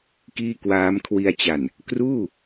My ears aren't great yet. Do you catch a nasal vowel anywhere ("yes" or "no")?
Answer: no